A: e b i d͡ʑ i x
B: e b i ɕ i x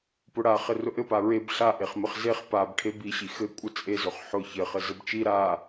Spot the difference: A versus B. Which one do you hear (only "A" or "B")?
B